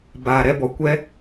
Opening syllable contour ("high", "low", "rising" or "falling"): low